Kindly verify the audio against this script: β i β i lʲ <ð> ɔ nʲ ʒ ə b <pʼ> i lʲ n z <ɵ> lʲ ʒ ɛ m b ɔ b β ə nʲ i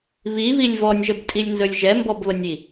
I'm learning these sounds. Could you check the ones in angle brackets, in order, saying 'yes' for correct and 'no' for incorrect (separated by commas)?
no, no, yes